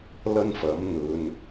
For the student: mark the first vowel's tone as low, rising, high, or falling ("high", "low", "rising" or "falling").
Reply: high